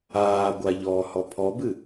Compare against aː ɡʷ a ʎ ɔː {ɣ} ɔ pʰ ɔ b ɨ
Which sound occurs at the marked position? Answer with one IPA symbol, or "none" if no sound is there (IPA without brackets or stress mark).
h